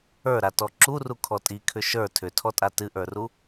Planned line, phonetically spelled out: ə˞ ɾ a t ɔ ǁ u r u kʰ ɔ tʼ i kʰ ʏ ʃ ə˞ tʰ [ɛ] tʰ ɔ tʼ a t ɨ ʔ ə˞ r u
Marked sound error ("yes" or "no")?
yes